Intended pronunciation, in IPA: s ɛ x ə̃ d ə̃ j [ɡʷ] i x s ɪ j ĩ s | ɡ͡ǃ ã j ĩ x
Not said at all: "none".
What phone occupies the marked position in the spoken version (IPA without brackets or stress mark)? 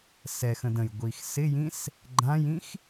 ɡʷ